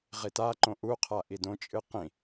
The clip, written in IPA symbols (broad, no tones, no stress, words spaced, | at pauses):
ʁitaǃõ ʔuqʰa ʔidõt͡ʃʼɨ qĩ